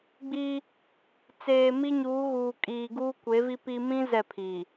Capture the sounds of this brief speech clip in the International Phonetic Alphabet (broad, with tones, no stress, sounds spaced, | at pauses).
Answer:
ɡ͡b i˦ | t͡s eː˨ m i˦ ɲ uː˨˦ ɣ uː˨ kʼ iː˨ ɡ uː˦ kʷ e˨˦ v i˦ p i˦ m ĩ˦ z ɛ˦˨ pʰ i˨